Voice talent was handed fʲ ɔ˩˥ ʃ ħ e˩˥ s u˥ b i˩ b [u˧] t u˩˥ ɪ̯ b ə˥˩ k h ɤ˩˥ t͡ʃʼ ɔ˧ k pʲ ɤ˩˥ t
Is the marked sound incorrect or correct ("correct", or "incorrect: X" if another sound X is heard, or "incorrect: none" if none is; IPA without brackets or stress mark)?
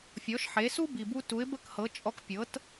correct